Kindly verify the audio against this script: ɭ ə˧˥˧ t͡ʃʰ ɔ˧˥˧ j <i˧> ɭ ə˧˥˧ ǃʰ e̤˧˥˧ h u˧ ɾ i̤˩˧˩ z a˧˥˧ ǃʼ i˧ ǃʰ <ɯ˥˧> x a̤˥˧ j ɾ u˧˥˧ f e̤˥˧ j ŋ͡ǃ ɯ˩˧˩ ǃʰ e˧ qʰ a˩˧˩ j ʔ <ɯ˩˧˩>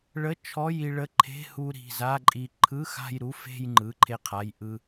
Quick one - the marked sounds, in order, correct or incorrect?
correct, incorrect: ɯ˧˥˧, incorrect: ɯ˧

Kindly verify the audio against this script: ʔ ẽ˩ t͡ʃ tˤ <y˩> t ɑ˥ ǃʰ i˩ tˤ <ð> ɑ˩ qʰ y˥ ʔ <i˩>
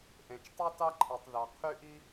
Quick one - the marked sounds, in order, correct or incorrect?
incorrect: y˥, correct, incorrect: i˥

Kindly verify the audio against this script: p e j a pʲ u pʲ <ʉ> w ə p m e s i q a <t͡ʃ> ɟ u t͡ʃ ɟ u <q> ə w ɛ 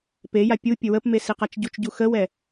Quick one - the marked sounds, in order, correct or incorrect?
incorrect: ə, correct, incorrect: x

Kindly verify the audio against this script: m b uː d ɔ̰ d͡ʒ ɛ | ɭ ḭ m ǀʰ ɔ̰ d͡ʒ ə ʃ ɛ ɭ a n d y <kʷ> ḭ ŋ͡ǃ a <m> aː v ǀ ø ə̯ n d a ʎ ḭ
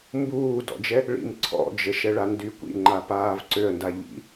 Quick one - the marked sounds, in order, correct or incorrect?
correct, incorrect: p

